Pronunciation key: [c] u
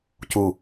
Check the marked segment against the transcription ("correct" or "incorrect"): correct